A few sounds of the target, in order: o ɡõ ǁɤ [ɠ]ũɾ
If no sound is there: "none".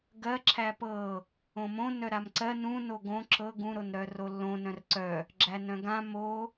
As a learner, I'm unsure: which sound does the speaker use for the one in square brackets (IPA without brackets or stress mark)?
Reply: ɡ